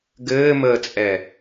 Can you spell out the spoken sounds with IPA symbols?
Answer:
ɡ ɘː m əː t͡sʼ ɛ

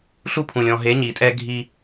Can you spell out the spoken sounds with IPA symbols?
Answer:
ɬ u˦ pʰ ũ˨ lʲ ɔ̃˨ ɦ e˨˦ ɲ i˨ tʼ ɛ˦ ɡʱ i˦

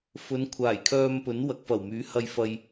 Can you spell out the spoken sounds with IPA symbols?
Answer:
f ɵ˨˧ n kʷʰ aː˨˩ j kʰ œː˧ m p ɵ˨˥ n w ɐ˨ k̚ f ɐ˨˩ w m yː˨˥ h ɐ˧ j f ɐ˧ j

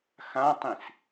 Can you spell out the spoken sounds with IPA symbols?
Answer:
x ã tˤ ĩ s

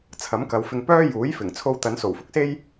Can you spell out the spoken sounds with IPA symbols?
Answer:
t͡sʰ ɐ˨˥ m k ɐ˨˧ w f ɪ˧ ŋ p œː˥ j uː˨˥ j f ɪ˨˩ ŋ t͡sʰ o˧ w t̪ ɐ˨˧ n s o˨˩ w f ʊ˥ k̚ s e˥ j

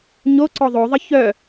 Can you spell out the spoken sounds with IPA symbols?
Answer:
ɲ o ǀ ɔ ðˤ o ðˤ ə ç œ

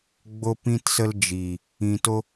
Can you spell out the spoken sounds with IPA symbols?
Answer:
ɡ͡b o˧ p ĩ˧ t s ə˧ l d͡ʒ i˨ | ĩ˧ t o˦

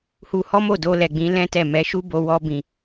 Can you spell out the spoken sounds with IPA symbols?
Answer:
h u˧ h ɔ˦ m o˦˨ d o˧ l ɛ˨ ɡ͡b ĩ˨˦ l ɛ̃˦ t ɛ˦˨ m ɛ˨˦ ʃ u˦ b o˧ w ɔ˧ b ĩ˨

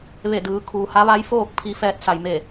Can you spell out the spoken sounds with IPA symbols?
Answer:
ʋ e˧˩ d ɯː˩˧ kʰ uː˩ h a˧˥ ʋ a˧˥ j f oː˥˨ k̚ pʰ i˧ f ɛː˧ t̚ s a˩ j m e˧˩

